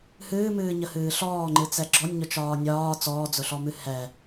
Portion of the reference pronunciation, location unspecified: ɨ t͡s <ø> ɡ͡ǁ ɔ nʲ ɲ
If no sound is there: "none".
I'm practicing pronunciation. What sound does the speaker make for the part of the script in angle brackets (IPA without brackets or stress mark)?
ɛ